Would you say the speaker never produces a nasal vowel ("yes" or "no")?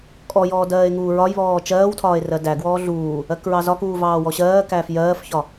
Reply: yes